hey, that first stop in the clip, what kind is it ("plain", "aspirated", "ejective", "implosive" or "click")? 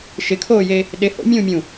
aspirated